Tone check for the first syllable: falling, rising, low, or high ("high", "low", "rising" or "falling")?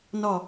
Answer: falling